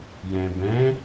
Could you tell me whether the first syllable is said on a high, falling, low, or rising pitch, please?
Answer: low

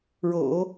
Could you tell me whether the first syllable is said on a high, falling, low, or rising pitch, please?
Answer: low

